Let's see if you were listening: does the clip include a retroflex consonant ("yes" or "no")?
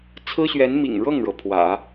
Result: yes